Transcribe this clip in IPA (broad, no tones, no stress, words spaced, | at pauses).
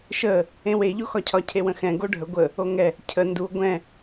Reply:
ʃə | ẽwe ʎoxɒcʰɒ cʰewə̃xɛ̃ ɡoɖʱə ɡʷə | oŋɛ | cʰə ndu ɡʷɛ̃